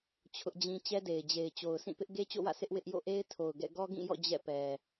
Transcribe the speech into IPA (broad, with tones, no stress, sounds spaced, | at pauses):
t͡ɕʰ ʊ˦ ʔ d͡ʑ ĩ˦ t͡ɕ ɛ˦ d e˨ ɪ̯ d͡ʑ e˨ ɪ̯ t͡ɕ o˨ ʊ̯ s ĩ˦˨ p ɪ˦ ʔ ɡ e˦ t͡ɕ o̰˦˨ w ä̰˦˨ s ɪ˦ ʔ w ɪ˦ ʔ j o̰˦˨ ʔ e˦ ɪ̯ tʰ o˨ ʊ̯ ɡ ɛ̰˦˨ ɡ ɔ˦ ɡ ĩ˦˨ j ɔ̰˦˨ d͡ʑ ɛ̰˦˨ p ɛ˨